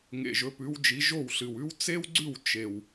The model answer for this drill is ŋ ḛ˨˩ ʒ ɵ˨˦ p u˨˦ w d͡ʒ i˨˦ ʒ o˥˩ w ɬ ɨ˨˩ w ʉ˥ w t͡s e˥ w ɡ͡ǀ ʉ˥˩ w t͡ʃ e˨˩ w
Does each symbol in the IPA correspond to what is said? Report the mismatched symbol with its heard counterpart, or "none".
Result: u˨˦ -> ʉ˨˦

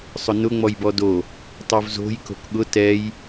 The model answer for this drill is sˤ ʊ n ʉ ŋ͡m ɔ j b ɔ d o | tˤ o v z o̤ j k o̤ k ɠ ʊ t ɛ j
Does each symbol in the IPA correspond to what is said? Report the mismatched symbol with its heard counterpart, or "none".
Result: ʉ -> ʊ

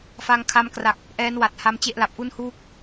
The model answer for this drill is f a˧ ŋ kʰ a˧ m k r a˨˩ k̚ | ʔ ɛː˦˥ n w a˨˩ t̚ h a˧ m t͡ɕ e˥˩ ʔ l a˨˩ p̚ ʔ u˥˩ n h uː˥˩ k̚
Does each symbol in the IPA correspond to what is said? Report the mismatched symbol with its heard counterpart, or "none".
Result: none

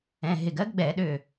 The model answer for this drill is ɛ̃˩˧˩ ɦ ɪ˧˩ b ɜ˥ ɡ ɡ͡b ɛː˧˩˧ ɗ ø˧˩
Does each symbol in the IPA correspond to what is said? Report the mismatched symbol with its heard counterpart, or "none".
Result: b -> ɡ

